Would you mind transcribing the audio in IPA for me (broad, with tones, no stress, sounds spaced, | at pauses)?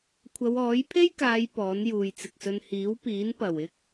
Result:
kʷʰ ɐ˨˧ w ɔː˨˥ j pʰ e˥ j k aː˨˧ j p ɔː˨˥ n j uː˨ j t͡s ɪ˨ k̚ s ɵ˧ n h iː˨˥ w p iː˨˥ n p ɐ˨˩ w ɪ˥ k̚